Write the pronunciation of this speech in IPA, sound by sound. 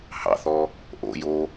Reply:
h ɑ̰ θ ɔ | ʔ o̰ j o

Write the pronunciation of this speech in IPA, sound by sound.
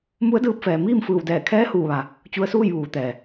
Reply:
m u˧˥ ə̯ d ɯː˧ p̚ f ɛː˩ m iː˥˨ m f ɯː˧˩ w d ɛː˧˩ kʰ ɛː˧˥ h uː˧˩ ʋ a˩ | t͡ɕ u˧ ə̯ s uː˥˨ j ʋ uː˩˧ t̪ ɛː˩

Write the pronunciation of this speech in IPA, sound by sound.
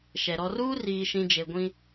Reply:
ʃ ɛ˨ ɾ ɔ˨ r uː˦ r iː˨ ʃ ĩ˨ d͡ʒ e˨ ɡʷ ĩ˦

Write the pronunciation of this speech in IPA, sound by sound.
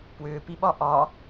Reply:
p w ʏː p i ɓ ɒ ʔ ɒ

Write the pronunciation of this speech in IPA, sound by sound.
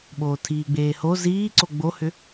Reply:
ɓ oː tʰ iː ɡ͡b eː h o z iː ǀ o ɡ͡b o h ʏ

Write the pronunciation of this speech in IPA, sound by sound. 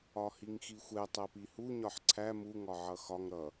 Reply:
ɒ h i ŋ x i xʷ ɛ tˤ ɜ p i h u ɲ ɒ ħ ǀʰ æ m u ŋ ɒ ʕ ʌ x ɒ ŋ ɾ ʌ

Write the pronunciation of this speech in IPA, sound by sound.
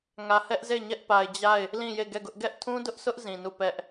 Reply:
ŋ ä˨ h ɛ˦ ʔ z e˦˨ ɲ ɛ˦ ʔ p a˨ ɪ̯ d͡ʑ a˦˨ ɪ̯ | l ĩ˦˨ j e˦˨ ɡ ɛ˦˨ ɡ ʊ˦ ʔ ɡ ɛ˦ ʔ tʰ ũ˦ d ʊ˦ ʔ s ʊ˦ ʔ z ĩ˨ n u˦˨ p ɛ˦ ʔ

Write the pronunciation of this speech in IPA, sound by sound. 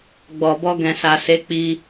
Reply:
ɡ͡b ɔ˨ b ɔ˧ ɡ ɛ̃˨ s a˨ s e˨˦ k͡p i˦

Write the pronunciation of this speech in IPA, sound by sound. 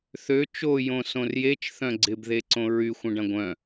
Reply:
θ ø t͡ʃ o j õ s õ r j e t͡ʃ θ œ̃ ɡ͡ǀ ɪ b ð e ǀ õ ɹ y xʷ ɐ̃ ɖ ɐ̃ ɡʷ œ̃

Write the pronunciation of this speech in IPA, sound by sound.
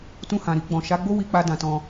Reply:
t ũ˧ h ã˨ ɾ i˧ ɡ͡b ɔ̃˨ ʃ a˨˦ ɡ͡b o˦ w i˧ k͡p a˧ d ã˧ t ɔ̃˧

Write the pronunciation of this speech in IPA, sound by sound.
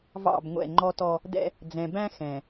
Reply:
v ɑ̰˦˨ b ŋʷ ɛ̰˦˨ ŋ͡ǃ ɔ˦ t ɔ˦ | d ɛ̰˦ | d͡z ɛ̃˨ b æ̃˦ x ɛ̃˨

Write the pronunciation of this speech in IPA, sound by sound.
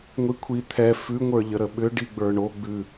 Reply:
ŋʷ i kʷʰ i t̪ʰ ɛ f ʉ ŋʷ ə˞ ʎ ə ɾ ə ɓ ʏ ɖ i ɡ͡b ə˞ ɳ o ɡ͡b ʉ

